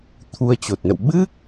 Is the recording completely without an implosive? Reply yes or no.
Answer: no